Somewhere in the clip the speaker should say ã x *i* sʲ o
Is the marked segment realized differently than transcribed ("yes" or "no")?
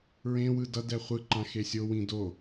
yes